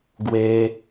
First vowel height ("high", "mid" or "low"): mid